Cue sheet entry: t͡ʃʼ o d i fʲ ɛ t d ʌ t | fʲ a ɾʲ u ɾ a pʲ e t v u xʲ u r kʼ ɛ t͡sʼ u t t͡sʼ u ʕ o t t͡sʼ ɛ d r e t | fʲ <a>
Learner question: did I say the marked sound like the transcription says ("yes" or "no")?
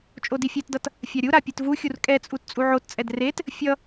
no